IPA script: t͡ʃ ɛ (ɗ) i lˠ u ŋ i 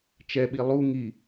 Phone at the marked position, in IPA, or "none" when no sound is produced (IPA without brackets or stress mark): ɓ